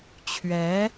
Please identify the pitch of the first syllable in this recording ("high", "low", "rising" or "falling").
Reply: rising